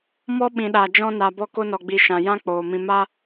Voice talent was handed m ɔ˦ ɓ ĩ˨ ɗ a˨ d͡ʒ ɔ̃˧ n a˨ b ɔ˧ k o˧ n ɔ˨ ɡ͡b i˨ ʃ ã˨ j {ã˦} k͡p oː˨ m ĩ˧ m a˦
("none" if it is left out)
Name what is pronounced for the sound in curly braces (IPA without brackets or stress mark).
ã˦